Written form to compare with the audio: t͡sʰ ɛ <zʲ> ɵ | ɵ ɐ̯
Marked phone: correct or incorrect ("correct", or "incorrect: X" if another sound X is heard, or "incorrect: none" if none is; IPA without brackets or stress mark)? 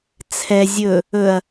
correct